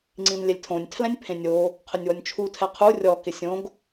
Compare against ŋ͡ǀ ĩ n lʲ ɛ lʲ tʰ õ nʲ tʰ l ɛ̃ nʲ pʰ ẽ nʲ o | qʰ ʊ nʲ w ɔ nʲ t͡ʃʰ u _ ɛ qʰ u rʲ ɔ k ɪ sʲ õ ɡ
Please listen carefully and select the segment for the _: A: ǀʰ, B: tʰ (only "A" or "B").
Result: B